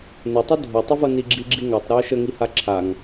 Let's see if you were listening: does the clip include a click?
yes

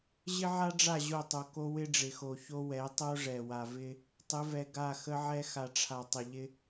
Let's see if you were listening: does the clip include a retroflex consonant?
yes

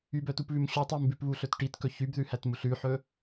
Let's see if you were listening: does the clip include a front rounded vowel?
yes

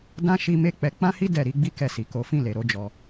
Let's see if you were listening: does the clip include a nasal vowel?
yes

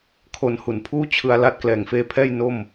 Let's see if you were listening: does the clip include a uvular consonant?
no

